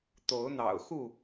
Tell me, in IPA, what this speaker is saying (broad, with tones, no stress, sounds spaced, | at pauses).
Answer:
t̪ o˨˦ ʊ̯ n̪ ɑ̰˨˩ ʊ̯ x u˥˨